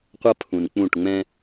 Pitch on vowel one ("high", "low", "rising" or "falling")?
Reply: high